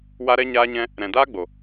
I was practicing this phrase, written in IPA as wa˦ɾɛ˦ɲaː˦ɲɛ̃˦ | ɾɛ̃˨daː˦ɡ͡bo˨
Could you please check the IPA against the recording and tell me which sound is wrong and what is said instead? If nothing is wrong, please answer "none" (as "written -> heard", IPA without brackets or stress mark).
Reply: none